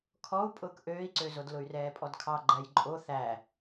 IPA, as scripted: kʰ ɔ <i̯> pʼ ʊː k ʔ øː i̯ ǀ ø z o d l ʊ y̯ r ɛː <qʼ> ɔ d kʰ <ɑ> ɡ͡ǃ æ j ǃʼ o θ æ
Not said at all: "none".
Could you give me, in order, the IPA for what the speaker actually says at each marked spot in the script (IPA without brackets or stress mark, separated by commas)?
u̯, pʼ, ɑ